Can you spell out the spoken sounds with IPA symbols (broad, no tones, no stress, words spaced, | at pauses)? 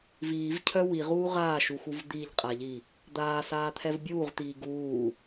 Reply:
viːvcʰœ wiʁuː ʁaːʃuxuv d̪iʎqʼaʎi | d̪aːsaːt̪ʰɛv bʲuːʁt̪iː ɡuː